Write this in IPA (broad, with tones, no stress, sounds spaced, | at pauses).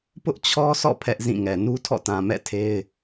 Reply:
p ʊ˦ ʔ t͡ɕʰ ɔ˦ s ɔ̰˦˨ pʰ ɛ˦ ʔ z ĩ˦˨ ŋ ɛ˨ n u˦ tʰ ɔ̰˦˨ t ã˨ m ɛ̰˦˨ tʰ e˦ ɪ̯